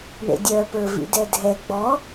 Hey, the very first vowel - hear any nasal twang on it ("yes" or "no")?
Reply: no